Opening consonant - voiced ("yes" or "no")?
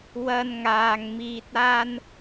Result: yes